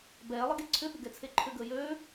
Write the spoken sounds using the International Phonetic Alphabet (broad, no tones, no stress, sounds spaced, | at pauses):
b ɛː lˠ ə ɡ e ǀʰ ʏ ɓ ʏ ɡ ɛ t͡sʰ e ǃʰ ʏ ɡ əː j ø